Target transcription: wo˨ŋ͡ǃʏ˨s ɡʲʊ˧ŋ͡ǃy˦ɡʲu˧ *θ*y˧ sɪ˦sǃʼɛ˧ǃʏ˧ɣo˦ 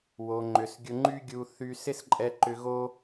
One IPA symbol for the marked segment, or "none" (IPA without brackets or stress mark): θ